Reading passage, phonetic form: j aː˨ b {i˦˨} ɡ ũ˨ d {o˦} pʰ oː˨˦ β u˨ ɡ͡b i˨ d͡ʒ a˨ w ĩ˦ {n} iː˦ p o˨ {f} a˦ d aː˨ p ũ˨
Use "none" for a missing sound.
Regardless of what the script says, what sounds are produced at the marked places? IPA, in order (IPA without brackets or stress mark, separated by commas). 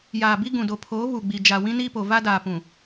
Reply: i˦, o˨, n, v